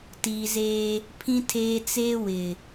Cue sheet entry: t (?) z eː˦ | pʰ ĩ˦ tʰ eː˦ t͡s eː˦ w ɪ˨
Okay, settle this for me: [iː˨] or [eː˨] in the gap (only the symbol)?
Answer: iː˨